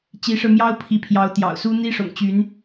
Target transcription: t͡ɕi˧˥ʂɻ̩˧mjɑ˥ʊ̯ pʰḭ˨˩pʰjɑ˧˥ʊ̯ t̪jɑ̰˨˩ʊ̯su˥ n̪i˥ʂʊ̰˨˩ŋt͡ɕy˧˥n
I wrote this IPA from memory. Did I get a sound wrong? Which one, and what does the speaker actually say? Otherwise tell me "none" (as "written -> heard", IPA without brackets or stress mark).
ḭ˨˩ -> i˧˥